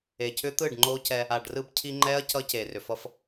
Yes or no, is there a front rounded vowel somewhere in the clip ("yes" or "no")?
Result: yes